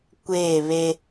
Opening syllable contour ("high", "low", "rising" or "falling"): falling